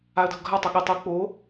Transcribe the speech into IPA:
aə̯dʱʊɡʱa tˤʊɠɪ tˤu k͡po

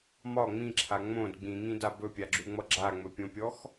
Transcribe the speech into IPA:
mɒ ŋ͡mĩǁʰa ŋ͡mõd ɡ͡bĩŋĩda bɵpʲaɡ͡ǁuŋ͡mʌ ɡ͡ǁaŋ͡mɵpʲõpʲɔx

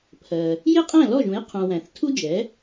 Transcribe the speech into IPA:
pʰɜ˩ | jɪ˥˩qʼæ̃˥˩lɔ˥˩ʒũ˩˥j qʰũ˩ wæ̃˩θtʰu˥d͡ʒɛ˩˥

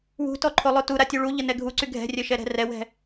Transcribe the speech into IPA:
wṳtɔǃʰolˠo tuɾatʲu ɭuʎənɛ ɡʱuǀy ɡʱɛ̤rʲœʃɛɾɛ̤ rɛwɛ̤

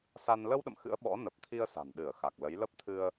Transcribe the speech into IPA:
sa˧n lə˧wɗə̰˧˨m xɨ̰˧˥ə̯ɓɔ̰˧˥ nə˨˩p̚t̪ʰi˧ə̯ sa̤˨˩nɗɨ˧˩ə̯xa˨˩k̚ lə˨˦jlə˦˥p̚ t̪ʰɨ˧ə̯

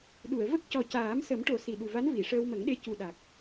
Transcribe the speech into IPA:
ɗu˨˩˨ə̯ və˦˥k̚cɔ˨˩ caː˨˩˦msə˨˩˦mʈo˨˩˦ si˨˩ ɗu˨˩va˧˥n vi˨˩˨ʂəː˧wmə˨˩˦ŋɗe˧ cu˨˩ɗa˨˩k̚

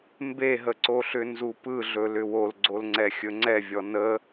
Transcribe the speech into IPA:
mbeɦəǀoɬʏ nzupɯɮɵ lʏwolɡ͡ǀolŋ͡ǀɛ xʲɵŋ͡ǀɛvʲɔ nə

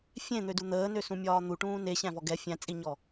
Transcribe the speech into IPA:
fʲẽn̪ødu n̪əːnøsũmʲɒː n̪uʈũː neɕæ̃vɔ ɡɛ fʲæ̃t͡sʼiɲɔ

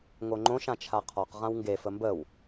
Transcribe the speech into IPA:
ŋoŋ͡ǃõʃ ãt͡ʃʰaqʰɔq ʁãwŋɡe fəmbəw

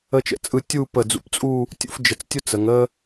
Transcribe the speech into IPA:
ə˥t͡ʃə̰˥˧t͡sʼɯ˥˧ tʲu˥˧pə˧˩d͡zṵ˧˩pt͡sʼu˥˧ | tʲṵ˥˧fd͡ʒə˧˩t͡stʲʊ˥ t͡sə˩˧ŋə˥

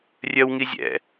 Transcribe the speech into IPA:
rʲœwŋi zʲɛ̰

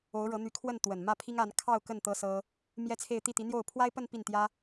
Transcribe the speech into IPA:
o˧˥ʊ̯ɻɤ˧˥n̪y˧˥ kʰwə˥˩nt̪wə˨˩nmä˥˩ pʰi˥ŋa˧˥n kʰɑ˥˧ʊ̯ kə˥˩n t̪ɤ˥sɤ˥ | mjɛ˥t͡sʰe˥˧ɪ̯ t̪i˥˩t̪i˧˥n̪jo˥˩ʊ̯ pʰwa˥ɪ̯pə˥˧n pi˥˩nt̪jä˥

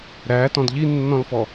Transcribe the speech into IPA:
ɾætɔ̃d ʎinːɔ̃lfɔ

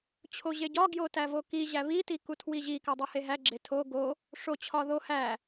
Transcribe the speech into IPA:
t͡ɕʰoʑeɟɒ ɡjotævoki ʑæβi tikutʰwiʑi kædˤuheɦæ ɡ͡ǁetʰo ɡo | ʂo t͡ɕʰɒðo hæ

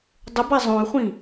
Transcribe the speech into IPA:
dˤʏba zˤõy̯χʷĩ

